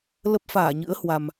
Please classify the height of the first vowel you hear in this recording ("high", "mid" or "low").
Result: mid